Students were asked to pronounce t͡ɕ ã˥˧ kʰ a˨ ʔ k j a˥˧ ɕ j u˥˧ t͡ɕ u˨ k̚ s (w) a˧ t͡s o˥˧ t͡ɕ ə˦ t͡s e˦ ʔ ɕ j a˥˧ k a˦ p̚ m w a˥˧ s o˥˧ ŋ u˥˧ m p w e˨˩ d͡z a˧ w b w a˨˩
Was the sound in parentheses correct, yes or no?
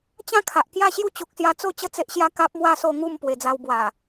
no